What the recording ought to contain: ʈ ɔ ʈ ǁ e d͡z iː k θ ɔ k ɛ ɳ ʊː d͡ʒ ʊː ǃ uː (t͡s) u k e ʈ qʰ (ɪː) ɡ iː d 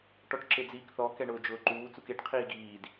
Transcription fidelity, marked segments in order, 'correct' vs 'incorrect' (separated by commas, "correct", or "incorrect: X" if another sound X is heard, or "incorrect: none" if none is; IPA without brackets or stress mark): correct, incorrect: iː